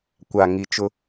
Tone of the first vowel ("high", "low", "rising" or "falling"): low